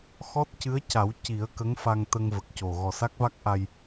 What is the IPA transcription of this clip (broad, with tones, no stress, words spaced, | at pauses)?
xɔ˦˥t̚cɨ˧˥ə̯ca˨˩˦w ci˨˩˦ə̯kə˧˥ŋfa˧ŋ t̪ə˧ŋ və˨˩k̚co˨˩ ɣɔ˨˩sa˦˥k̚va˦˥k̚ʔa˧j